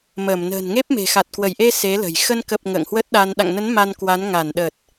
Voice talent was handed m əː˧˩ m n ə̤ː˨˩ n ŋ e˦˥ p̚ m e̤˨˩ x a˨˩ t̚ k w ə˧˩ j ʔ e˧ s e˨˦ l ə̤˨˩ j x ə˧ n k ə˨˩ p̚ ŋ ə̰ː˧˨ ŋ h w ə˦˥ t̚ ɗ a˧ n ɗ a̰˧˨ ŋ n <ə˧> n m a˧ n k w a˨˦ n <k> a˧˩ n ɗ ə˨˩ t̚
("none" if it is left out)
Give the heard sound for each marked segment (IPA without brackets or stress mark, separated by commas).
ə˨˦, ŋ